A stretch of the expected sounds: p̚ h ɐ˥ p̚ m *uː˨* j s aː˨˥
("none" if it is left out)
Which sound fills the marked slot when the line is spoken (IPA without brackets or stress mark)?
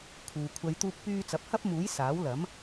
uː˨˥